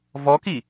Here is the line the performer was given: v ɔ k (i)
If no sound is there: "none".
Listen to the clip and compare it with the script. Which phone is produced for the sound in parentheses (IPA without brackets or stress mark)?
i